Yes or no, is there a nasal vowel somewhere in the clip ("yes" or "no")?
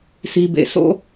no